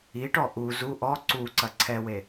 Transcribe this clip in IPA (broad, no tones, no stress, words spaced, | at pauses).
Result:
iʈɔ ʔu zu ʔɔ ǀuǀɐ ǀʰɛwe